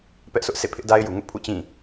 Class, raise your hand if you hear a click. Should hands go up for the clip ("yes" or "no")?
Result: no